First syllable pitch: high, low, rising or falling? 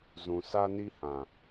low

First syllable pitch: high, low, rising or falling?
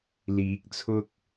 rising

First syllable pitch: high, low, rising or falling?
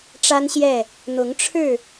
high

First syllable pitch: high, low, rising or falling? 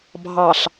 low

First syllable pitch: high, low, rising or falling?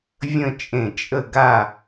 falling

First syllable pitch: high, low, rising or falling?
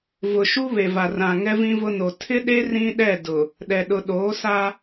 low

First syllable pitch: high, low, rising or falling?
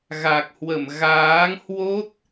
low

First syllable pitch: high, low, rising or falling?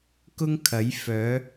high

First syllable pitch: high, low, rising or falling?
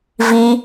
high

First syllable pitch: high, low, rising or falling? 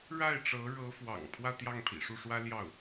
falling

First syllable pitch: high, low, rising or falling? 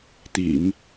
low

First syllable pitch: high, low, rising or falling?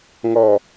low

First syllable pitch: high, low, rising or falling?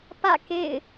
falling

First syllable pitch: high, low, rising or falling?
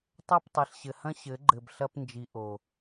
falling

